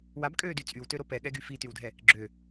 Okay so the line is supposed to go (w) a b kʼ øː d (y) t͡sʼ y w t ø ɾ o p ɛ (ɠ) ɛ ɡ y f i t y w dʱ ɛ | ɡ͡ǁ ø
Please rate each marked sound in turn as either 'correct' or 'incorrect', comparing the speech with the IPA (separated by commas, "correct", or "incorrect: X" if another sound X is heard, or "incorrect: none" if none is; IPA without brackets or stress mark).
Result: correct, correct, correct